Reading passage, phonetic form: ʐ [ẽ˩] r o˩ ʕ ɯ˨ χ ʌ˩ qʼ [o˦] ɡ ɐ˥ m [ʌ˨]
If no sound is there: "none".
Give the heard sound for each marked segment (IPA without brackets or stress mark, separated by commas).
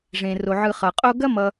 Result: ẽ˩, o˦, ʌ˨